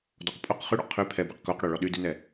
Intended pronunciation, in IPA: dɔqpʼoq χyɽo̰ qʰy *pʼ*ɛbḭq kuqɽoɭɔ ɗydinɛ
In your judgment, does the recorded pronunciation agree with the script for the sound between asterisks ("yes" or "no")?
no